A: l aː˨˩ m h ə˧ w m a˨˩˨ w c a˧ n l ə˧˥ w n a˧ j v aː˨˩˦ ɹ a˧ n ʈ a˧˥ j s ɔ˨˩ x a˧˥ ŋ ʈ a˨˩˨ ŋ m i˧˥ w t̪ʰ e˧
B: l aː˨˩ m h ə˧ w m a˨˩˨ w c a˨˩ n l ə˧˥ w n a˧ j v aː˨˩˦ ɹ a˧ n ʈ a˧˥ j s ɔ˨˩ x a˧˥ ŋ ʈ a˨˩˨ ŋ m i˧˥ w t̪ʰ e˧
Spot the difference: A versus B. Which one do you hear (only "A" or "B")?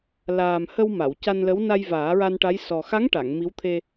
A